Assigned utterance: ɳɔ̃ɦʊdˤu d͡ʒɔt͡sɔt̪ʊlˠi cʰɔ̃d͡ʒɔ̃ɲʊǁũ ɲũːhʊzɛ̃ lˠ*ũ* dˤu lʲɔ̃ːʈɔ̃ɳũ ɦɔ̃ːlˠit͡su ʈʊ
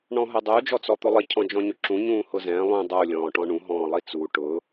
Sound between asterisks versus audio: correct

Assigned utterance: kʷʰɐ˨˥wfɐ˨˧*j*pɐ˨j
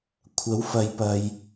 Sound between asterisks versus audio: correct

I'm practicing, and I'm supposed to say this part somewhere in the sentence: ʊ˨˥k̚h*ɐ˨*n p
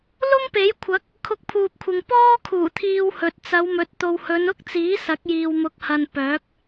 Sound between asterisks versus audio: correct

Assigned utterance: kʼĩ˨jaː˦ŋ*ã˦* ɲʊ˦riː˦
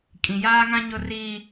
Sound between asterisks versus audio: correct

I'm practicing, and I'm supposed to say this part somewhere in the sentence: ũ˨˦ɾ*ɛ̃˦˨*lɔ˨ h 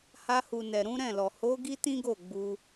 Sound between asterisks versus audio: correct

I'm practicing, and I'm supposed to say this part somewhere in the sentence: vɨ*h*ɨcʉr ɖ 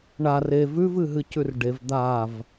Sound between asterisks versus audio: incorrect: ɦ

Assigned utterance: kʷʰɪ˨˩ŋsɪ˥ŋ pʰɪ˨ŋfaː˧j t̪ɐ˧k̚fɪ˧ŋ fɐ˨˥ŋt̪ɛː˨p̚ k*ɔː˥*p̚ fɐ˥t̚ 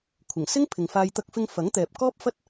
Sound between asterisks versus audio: correct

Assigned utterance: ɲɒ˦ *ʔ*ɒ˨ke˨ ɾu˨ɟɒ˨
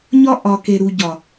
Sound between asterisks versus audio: correct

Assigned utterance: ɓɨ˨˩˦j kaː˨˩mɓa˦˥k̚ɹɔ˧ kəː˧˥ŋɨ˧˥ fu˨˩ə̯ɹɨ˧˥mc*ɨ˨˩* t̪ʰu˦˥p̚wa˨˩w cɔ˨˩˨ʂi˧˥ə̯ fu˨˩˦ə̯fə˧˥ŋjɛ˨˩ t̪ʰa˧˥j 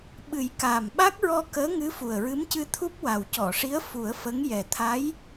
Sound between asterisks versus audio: incorrect: ɨ˧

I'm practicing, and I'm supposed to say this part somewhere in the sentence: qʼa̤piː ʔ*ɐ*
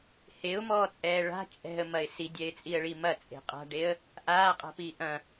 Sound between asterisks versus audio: incorrect: ɐ̃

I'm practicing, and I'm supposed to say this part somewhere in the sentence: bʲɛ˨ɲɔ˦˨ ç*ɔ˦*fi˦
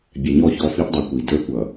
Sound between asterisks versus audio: correct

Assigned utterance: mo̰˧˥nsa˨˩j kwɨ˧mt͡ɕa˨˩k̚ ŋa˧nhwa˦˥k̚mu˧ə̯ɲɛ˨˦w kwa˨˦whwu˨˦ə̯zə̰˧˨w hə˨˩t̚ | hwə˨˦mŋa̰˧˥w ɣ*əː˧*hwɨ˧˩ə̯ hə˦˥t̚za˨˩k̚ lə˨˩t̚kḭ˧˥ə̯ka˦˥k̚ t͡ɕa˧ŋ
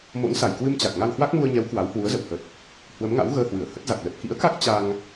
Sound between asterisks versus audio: correct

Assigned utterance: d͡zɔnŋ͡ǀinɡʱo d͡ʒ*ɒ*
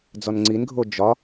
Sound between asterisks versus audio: correct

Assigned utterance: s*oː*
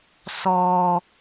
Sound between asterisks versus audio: incorrect: ɔː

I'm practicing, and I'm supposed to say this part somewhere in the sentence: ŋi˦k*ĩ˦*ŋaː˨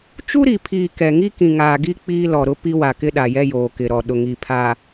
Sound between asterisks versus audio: incorrect: ĩ˨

